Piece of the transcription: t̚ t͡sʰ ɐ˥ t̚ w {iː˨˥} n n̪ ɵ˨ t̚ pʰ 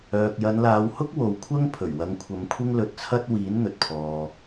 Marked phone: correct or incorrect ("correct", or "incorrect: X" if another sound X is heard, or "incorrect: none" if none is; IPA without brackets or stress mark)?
correct